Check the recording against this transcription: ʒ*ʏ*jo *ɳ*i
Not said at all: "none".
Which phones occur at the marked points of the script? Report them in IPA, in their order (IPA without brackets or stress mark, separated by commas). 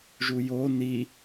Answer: u, n